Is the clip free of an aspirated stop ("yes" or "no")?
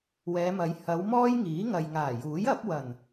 yes